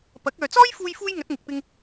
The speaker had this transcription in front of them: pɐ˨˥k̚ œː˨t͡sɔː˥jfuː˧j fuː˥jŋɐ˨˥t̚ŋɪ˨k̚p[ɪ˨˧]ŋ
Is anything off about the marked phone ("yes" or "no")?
yes